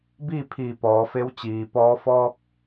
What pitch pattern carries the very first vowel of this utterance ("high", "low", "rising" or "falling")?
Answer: falling